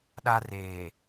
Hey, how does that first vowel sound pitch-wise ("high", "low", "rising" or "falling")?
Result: high